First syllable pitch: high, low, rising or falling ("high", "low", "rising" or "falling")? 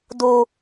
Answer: low